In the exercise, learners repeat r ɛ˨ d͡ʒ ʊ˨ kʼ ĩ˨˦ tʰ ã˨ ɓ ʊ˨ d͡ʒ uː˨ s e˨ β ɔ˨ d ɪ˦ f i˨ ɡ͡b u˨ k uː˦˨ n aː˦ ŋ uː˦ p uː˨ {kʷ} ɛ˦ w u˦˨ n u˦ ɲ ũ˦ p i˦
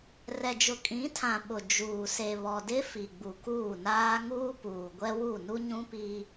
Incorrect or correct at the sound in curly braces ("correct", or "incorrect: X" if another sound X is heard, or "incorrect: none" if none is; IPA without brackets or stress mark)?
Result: incorrect: ɡʷ